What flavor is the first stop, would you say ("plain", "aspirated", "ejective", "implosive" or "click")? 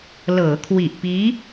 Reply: aspirated